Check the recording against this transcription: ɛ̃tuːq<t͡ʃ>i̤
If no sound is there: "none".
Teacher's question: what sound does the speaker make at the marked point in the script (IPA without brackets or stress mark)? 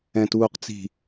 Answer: t͡s